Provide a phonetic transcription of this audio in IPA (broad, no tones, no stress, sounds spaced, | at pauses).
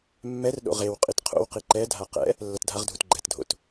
mː ɛ r ɗ o̰ ʁ e w qʼ i t qʰ o̰ w q i ǃ ɛ dʱ a q ɛ̰ | lː ʌ t dʱ a ʁ dʱ u t ɡ͡ǃ ɛ t dʱ o̰ t